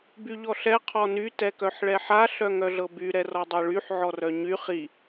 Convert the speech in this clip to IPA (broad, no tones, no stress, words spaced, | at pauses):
byʎɔɬɛ qʰɔny tɛkœħɭɛħa ɬœŋœɮɤby ɾɛrɔdˤɤɭyħ ʕɔrœɲy χi